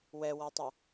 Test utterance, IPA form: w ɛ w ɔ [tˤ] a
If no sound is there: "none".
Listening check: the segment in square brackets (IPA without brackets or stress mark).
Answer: tˤ